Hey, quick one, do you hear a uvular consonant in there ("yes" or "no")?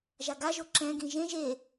no